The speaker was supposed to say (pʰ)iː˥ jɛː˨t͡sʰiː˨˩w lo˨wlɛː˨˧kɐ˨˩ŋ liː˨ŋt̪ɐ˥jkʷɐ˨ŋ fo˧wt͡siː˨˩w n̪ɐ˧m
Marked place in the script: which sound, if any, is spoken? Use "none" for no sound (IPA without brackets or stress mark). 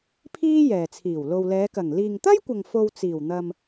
pʰ